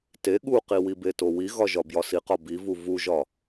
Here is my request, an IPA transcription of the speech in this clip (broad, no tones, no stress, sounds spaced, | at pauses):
t e ɠ u q i w i b e t o w i ɣ ɒ ʒ ɒ b j ɒ s i q ɒ b i v u v u ʒ ɒ